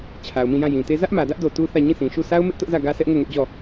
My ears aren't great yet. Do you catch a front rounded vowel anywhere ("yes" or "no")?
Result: no